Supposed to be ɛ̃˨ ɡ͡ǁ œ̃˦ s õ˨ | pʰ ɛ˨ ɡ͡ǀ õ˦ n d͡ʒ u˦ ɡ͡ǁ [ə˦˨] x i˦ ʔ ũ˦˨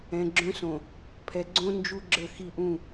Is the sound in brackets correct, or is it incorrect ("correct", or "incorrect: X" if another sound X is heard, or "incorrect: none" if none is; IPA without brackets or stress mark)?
correct